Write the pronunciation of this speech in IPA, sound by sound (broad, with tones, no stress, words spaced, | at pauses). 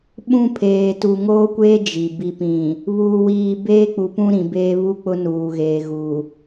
ɓũ˦pʰeː˨ tu˨ŋoː˦kʷeː˦ d͡ʒi˨ bi˨pĩ˨ | βuː˨wiː˨beː˦ k͡pu˨pũ˦ɾĩ˨beː˦ βu˦k͡pʊ˦nuː˨ɣeː˨ ɣu˨